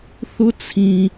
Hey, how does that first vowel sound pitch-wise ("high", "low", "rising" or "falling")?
high